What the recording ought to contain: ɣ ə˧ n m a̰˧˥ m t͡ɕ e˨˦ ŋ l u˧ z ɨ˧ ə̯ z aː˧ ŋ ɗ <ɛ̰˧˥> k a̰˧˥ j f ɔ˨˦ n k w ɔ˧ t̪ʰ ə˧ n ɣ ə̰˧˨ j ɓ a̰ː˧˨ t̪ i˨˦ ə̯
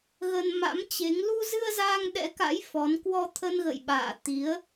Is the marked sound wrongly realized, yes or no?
no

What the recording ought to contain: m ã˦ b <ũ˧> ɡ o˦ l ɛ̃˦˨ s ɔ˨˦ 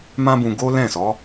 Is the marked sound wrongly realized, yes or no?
no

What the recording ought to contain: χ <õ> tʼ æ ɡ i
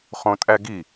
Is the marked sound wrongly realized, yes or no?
no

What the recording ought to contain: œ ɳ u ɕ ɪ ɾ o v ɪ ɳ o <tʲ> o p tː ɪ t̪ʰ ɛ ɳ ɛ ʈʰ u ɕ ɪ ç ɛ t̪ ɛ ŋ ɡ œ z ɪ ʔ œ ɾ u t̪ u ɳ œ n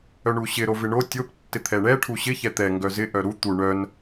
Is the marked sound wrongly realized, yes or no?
no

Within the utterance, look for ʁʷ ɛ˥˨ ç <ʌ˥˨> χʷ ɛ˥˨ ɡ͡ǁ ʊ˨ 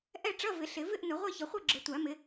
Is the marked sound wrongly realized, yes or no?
yes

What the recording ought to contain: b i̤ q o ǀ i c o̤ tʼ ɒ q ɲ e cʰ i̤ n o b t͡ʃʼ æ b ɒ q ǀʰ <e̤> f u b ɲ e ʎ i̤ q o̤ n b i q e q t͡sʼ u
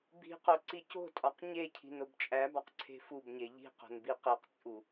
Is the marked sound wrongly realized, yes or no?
no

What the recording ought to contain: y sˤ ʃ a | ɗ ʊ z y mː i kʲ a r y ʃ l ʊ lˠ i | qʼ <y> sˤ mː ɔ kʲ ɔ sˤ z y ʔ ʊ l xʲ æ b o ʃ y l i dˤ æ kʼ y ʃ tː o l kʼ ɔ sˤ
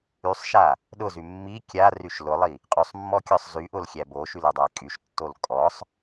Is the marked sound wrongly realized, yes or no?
no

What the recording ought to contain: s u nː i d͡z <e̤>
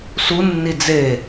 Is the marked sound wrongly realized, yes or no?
yes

